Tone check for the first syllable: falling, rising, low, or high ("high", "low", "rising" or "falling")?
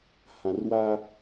low